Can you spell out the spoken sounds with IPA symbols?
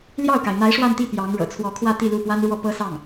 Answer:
l j ɑ˥˩ ʊ̯ k a˩ ɪ̯ n̪ a˧˥ ɪ̯ ʂ w a˥˧ n t̪ i˥˩ p j ɑ˧˥ ŋ ɻ ɤ̰˨˩ t͡sʰ w ɔ˧˥ kʰ w ä˥˧ t̪ i˥˧ l u˥˩ p w a˥ n ɻ w ɔ˥˩ p ɤ˥ s ɑ˥˩ ŋ

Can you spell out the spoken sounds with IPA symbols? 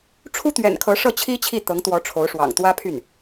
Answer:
ʈ͡ʂʰ u˥ t̪ ɥ ɛ̰˨˩ n kʰ ɤ˧˥ ʂ ɤ˥˩ t͡ɕʰ i˥ t͡ɕʰ i˥˩ t̪ ɤ˧˥ ŋ t̪ w ɔ˧˥ ʈ͡ʂʰ o˧˥ ʊ̯ ʂ w ɑ̰˨˩ ŋ t̪ w ä˥ pʰ y˥˩ n

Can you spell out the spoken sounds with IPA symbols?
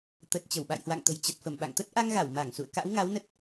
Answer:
t̪ ə˨˩ t̚ t͡ɕ ə˧˩ w ɓ a̰˧˨ j h w a̰˧˨ ŋ t̪ ə̤˨˩ j t͡ɕ ə˨˩ t̚ f ə˧˩ m ɓ a̰˧˨ ŋ t̪ ə˦˥ t̚ ʔ a˧ ŋ ɣ a˧˩ w m a˧˩ ŋ s ṵ˧˨ ə̯ k a̰˧˥ w ŋ a˨˦ w n ə˦˥ t̚

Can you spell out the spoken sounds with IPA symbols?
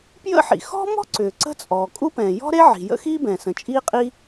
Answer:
p j ə̰˥ ħ ḭ˩ x ɔ̤˥ m ɔ̤˥ ǀ ʏː˩ ǀ ə̤˥ t͡sʼ ɔː˩ kʼ u˥ p ɛ̃˩ j ɔ̤˥ ɾ e˥ ʕ i̤˩ j ə̰˥ x iː˥ b ɛ̃˩ s ə̃˩ t͡ʃʼ iː˥ qʼ i˥

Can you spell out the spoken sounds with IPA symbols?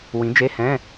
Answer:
w ĩ˨˥ d͡ʒ e˧˥˧ h ɛ̃˧˥˧

